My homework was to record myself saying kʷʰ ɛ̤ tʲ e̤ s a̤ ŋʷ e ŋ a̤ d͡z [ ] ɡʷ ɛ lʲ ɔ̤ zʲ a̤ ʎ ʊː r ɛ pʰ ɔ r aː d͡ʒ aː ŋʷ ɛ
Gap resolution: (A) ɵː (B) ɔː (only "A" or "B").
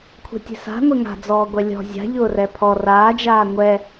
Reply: B